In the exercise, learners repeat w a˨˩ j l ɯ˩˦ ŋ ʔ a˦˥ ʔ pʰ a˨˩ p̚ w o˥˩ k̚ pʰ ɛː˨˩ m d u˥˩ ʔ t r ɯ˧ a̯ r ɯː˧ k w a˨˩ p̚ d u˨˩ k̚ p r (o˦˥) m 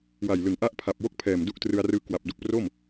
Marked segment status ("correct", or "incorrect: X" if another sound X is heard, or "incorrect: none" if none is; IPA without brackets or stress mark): incorrect: o˥˩